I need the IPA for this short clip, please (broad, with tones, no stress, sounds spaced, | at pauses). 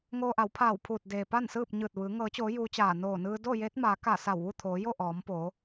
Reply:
ŋ oː˧ ʔ a˩˧ w pʰ aː˧˩ w pʰ uː˧˩ t̚ d eː˩ p a˥˨ n s ɯː˥˨ p̚ ɲ ɯː˧˩ t̚ ʋ ɯː˩˧ ŋ ɤː˩˧ t͡ɕ oː˩˧ j uː˧˥ t͡ɕ aː˧˩ n oː˧˩ n ɯː˧ d o˥˨ j eː˧˥ t̚ m aː˩˧ k a˧˩ s a˧˩ w ʋ u˥˨ t̪ʰ oː˩˧ j o˥˨ ʔ ɔː˩˧ m p oː˩˧